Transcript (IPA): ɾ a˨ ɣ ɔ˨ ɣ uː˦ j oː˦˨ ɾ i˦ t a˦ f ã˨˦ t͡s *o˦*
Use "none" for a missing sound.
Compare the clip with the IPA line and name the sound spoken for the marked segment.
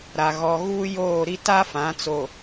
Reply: o˨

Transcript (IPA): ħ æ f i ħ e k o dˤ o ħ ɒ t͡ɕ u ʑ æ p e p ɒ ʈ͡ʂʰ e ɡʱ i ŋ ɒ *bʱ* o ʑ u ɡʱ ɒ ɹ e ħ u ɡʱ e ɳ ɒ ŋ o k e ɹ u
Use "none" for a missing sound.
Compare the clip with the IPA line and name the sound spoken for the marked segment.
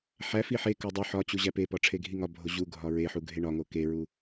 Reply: bʱ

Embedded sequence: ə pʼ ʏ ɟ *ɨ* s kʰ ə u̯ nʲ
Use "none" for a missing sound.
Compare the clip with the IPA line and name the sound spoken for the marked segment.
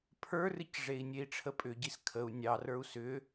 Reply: i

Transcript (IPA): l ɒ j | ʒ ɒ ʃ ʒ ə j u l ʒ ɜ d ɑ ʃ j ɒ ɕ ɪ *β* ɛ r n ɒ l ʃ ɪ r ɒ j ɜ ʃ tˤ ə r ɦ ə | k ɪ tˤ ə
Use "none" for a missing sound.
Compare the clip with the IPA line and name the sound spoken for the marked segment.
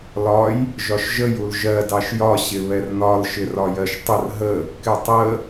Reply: β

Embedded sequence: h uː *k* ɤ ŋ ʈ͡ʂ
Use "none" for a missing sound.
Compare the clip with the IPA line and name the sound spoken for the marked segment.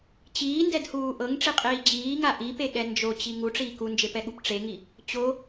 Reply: ʔ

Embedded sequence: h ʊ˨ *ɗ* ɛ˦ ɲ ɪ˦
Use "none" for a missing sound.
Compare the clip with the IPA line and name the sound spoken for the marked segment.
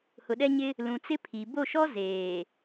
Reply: ɗ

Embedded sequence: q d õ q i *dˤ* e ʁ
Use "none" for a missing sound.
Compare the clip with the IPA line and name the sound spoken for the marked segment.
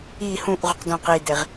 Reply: d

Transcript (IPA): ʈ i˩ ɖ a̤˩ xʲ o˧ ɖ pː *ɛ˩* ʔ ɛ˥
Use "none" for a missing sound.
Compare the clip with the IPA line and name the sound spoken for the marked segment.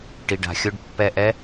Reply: ɛ˧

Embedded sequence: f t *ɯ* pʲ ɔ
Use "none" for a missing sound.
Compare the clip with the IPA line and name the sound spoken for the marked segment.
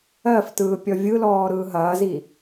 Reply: ɯː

